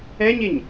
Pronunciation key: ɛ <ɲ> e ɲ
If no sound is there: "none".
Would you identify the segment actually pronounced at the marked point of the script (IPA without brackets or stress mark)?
ɲ